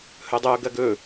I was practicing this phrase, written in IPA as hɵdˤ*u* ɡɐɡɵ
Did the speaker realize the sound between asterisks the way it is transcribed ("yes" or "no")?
no